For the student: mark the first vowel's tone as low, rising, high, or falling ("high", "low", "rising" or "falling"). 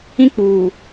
high